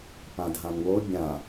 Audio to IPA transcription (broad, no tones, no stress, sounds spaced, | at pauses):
p ã d ɦ ã n w o bʲ ã